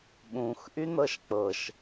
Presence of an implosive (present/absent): present